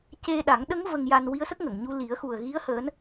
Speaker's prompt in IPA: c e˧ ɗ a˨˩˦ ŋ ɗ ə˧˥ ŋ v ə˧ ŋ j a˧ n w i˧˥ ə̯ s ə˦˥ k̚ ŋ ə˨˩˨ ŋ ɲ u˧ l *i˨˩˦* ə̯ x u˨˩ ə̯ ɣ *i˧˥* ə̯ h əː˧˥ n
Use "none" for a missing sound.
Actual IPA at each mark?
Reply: i˨˩˦, i˧˥

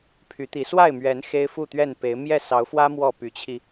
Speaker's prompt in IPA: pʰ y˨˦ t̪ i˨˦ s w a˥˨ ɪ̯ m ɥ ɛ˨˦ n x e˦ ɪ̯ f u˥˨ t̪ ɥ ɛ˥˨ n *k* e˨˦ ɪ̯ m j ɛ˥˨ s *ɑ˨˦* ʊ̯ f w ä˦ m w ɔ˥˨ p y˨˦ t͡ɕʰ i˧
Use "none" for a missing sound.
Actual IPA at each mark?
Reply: p, ɑ˨˦

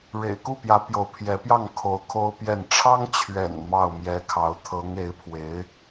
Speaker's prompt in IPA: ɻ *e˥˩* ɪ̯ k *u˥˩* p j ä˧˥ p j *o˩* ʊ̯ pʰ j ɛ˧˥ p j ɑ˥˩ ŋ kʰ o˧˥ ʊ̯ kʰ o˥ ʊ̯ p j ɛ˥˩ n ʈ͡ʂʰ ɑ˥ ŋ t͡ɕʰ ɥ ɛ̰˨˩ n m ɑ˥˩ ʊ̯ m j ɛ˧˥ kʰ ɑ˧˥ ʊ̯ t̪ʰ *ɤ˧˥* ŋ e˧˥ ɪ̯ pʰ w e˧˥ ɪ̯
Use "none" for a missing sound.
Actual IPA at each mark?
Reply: ḛ˨˩, u˥˩, o˧˥, ɤ˧˥

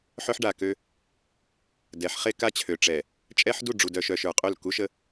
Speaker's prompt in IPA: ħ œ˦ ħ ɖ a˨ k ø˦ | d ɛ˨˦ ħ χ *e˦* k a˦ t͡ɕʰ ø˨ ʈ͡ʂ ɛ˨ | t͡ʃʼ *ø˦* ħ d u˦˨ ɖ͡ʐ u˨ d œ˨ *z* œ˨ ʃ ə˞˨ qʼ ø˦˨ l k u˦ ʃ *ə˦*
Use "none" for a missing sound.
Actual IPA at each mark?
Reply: e˦, ɛ˦, ʃ, ə˦

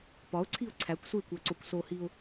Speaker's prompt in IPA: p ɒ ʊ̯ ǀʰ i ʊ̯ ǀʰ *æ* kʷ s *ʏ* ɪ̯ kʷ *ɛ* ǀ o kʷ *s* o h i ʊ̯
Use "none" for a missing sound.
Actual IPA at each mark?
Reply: æ, u, æ, s

